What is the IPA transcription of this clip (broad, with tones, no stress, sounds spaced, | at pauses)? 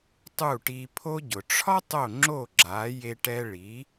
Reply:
tˤ u˥˩ ʈ i˧ pʰ o˥ ɟ ʊ˩ ʈ͡ʂʰ ɒ˥ tˤ o˥˩ ŋ͡ǁ o˥˩ ɡ͡ǁ a˩˥ j e˧ ʈ ɛ˧ ɭ i˩˥